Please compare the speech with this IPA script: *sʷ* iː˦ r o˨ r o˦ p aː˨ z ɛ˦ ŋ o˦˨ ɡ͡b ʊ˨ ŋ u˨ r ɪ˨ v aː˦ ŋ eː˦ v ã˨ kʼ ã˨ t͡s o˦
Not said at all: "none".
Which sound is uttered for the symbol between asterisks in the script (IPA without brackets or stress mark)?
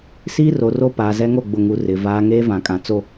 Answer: s